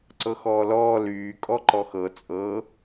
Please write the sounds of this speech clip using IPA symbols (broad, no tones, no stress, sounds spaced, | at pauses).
ǀ ɤ x ɔː l ɔː l yː kʼ ɔ ǃ ɔ x ɤ t͡sʼ ɤ